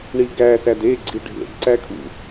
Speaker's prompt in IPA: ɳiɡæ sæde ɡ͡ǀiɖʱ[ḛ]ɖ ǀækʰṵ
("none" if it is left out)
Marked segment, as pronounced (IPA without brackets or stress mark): ḛ